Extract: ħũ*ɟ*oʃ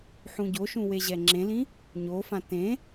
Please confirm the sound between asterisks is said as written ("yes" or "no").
yes